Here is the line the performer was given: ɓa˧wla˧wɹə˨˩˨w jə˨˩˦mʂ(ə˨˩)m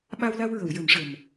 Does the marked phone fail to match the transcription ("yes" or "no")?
no